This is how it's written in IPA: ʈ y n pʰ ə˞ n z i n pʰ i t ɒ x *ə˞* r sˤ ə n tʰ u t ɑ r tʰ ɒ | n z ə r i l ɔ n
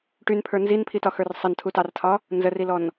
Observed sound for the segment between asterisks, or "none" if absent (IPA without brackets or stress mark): ə˞